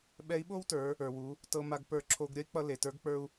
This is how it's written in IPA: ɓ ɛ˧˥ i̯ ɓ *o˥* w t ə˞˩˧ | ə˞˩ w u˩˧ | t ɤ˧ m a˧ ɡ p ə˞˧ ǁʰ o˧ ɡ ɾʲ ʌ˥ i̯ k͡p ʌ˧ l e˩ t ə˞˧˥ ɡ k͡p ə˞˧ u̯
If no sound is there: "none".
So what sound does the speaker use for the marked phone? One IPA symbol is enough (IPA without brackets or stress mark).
o˥